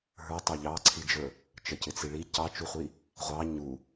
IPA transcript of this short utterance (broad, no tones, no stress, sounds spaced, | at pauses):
ɦ ə˞ tˤ ɑ ʎ ɑ ǀʰ i d͡ʒ ə˞ | t͡ʃ ə c ɪ t͡s i ɭ i c ɑ t͡ʃ u χʷ i | ʁʷ ɑ ɲ u